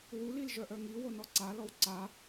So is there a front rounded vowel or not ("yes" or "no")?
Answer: yes